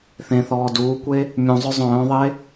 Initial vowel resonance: nasal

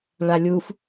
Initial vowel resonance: oral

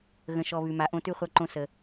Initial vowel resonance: nasal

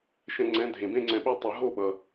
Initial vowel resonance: nasal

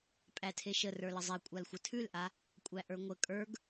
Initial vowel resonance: oral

